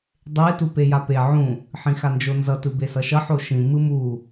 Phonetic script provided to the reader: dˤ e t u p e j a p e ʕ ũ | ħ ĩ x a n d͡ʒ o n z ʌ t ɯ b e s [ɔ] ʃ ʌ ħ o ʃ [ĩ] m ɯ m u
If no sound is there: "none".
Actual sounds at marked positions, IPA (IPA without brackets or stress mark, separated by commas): ʌ, ĩ